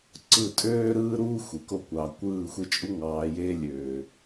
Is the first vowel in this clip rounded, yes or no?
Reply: no